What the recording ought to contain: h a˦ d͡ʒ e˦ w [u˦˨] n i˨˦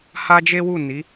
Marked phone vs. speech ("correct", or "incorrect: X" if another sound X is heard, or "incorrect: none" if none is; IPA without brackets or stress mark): correct